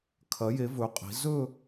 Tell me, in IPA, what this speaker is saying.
kʰ ɐ˩˧ j e˩˧ v ɵ˩˧ qʼ i̤˩˧ z ɵ˥˧

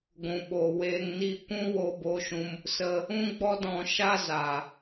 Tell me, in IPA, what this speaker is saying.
ɡʷ ũ˨ ɓ oː˨ w eː˧ ŋ n i˦˨ kʷ ũ˦ w o˧ b o˧ ʃ ũ˧ m | s ə˧ | ũ˦ ɡ͡b ɔ˦ d ɔ̃˧ ʃ a˦ z a˨

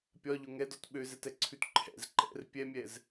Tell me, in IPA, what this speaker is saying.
pʲ ɒ ʎ ʊ ŋ ɛ d ɔ t ɓ ø z ɛ t ɛ ǀʰ ʉ t ǃʰ ɛ̰ z ǃ ɛ̰ r pʲ ɛ mʲ ɛ z

